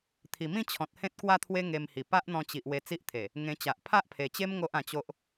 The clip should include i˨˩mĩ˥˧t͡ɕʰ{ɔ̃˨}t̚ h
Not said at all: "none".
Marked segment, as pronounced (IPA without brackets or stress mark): ɔ̃˨